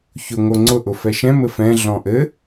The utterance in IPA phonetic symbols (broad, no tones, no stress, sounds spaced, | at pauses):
ç ʊ ŋ o ŋ͡ǀ ʊ ʔ ʊ f ɛ ʃ ɛ̃ m ɘ f ɛ̃ ɮ ɔ̃ ʔ ɘ